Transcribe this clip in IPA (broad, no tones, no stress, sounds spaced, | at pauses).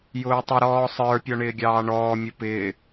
j ʊː tˤ ʊ ɾ ɔː sˤ ə˞ pʲ ɔ ɳ ɪː ɡʲ ɑː ɳ ɔː mʲ ʊ p ɪː